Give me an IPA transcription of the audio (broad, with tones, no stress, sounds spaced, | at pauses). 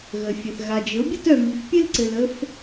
ɣ ə˧ fʲ ə˧ θ ɣ a˧ d͡ʒ ɘ˧˥ o̯ bʲ ə˥ t œ˧ m i˧ f pʲ ɘ˥ l ǀ ɘ˧ l ə˥ f